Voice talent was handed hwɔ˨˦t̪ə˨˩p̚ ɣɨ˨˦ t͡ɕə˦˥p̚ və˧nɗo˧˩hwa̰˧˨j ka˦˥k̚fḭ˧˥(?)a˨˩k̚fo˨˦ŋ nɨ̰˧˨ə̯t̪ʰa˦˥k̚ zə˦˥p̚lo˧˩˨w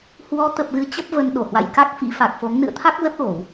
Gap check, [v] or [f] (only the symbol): f